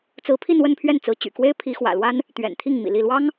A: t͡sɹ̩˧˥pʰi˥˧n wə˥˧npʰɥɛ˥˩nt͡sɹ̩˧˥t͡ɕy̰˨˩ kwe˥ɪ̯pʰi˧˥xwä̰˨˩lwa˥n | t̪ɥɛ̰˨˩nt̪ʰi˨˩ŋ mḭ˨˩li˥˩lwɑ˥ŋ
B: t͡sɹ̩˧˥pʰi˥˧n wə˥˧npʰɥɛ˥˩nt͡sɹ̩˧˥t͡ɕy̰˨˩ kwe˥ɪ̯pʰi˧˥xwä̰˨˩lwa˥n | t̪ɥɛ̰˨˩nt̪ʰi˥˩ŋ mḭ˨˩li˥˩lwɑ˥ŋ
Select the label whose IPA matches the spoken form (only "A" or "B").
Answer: B